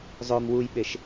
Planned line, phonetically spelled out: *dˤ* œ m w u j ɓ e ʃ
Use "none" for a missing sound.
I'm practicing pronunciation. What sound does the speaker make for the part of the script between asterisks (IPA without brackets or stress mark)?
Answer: zˤ